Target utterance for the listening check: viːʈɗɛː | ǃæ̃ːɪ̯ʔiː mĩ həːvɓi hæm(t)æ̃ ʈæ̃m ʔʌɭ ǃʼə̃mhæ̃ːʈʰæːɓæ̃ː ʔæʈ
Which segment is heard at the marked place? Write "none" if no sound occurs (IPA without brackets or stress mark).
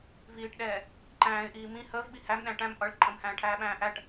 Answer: ɗ